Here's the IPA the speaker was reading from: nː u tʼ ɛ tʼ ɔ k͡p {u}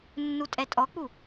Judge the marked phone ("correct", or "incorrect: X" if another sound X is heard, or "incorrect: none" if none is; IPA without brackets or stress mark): correct